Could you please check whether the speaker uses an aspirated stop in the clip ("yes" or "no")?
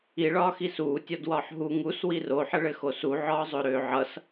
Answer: no